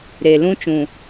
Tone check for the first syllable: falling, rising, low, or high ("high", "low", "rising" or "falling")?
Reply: low